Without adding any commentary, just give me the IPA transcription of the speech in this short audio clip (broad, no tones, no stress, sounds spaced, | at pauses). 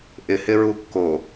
ʔ ɪ h ɪ ɹ u kː o